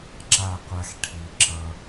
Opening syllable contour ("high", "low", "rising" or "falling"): falling